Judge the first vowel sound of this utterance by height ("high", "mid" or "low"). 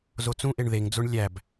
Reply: mid